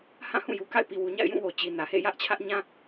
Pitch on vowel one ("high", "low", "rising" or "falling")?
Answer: falling